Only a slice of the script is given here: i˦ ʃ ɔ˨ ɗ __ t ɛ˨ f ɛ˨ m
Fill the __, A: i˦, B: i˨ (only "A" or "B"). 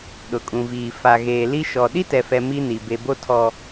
A